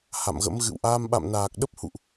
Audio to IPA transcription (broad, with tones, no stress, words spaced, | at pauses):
ha̰˧˨mɣə̰˧˥m ɣɨ̰˧˨wʔaː˧m ɓa̰˧˨mnaː˨˩k̚ɗə˦˥p̚ hṵ˧˨ʔ